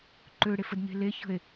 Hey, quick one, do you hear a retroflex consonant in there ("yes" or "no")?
yes